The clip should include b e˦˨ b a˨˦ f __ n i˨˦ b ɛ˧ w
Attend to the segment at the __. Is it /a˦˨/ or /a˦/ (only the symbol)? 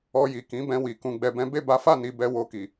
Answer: a˦˨